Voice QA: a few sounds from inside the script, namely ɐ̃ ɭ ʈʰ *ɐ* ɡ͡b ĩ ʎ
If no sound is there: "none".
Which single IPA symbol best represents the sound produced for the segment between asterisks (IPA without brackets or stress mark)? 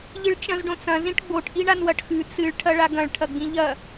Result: ɐ